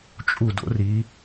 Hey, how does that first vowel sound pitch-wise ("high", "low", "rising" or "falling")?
falling